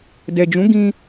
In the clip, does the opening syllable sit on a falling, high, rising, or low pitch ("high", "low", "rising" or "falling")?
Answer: low